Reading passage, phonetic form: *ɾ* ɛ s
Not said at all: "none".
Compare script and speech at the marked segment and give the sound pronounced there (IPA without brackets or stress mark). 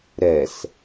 ɾ